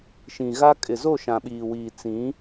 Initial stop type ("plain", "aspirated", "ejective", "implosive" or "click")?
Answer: ejective